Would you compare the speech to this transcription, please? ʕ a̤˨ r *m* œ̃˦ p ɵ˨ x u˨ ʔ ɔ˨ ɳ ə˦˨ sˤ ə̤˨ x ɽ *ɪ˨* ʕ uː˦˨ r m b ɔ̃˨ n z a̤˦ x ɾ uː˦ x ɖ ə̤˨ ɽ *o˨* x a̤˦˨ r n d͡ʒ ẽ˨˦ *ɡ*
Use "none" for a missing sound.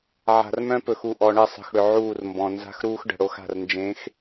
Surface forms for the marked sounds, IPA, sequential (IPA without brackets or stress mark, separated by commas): m, ʏ˨, o˦, x